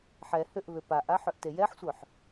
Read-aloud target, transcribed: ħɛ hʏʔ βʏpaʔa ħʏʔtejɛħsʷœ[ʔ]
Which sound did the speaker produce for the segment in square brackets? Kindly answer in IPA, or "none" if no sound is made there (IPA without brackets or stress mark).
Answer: ħ